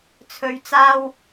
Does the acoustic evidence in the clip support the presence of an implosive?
no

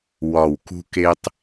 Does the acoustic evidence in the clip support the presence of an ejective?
no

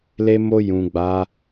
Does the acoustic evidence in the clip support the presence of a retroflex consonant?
no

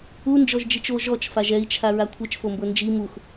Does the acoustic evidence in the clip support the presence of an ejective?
no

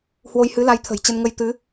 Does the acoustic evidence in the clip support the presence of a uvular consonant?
no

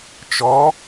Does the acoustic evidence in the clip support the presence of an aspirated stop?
no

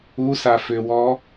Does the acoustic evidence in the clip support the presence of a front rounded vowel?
yes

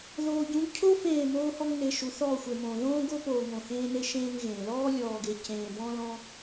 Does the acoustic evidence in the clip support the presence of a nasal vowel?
yes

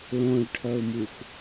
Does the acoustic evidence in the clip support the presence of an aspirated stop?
yes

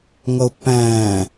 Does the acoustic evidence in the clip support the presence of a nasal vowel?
yes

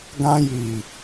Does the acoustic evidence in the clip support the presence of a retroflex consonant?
no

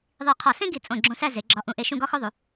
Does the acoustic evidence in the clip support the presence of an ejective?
yes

